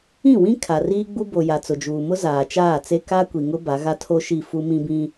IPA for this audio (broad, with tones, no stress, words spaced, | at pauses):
ĩ˦˨wĩ˦ kʰa˨riː˦ɡ͡bu˦ bo˨ ja˨t͡sʊ˨d͡ʒuː˨mʊ˦ zaː˨t͡ʃaː˦˨t͡se˦ ka˦kʷi˨ŋʊ˦ ba˨˦ɣa˦tʰo˦ʃi˦˨ fu˦mĩ˦bĩ˦